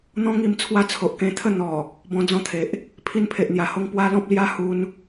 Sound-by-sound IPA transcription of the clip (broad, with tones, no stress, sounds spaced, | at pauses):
n̪ ɔ̃˦ ŋ i˧ m t͡sʰ w a˦ t͡sʰ o˨ ʔ k ẽ˧ t̪ʰ ə˥˧ n̪ ɔ˨˩ | b ɔ̃˧ d͡z ɔ̃˧ t̪ʰ e˨ ʔ | pʰ i˧ n pʰ e˨ ʔ n̪ j a˨˩ h o˧ ŋ p w a˦ l ɔ̃˦ p̚ l j a˦ h u˧ n